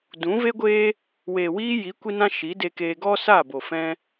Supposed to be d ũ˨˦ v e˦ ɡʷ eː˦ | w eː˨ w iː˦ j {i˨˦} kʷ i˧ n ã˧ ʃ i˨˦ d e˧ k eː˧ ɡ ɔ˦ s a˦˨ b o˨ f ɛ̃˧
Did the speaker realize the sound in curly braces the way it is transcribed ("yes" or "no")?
yes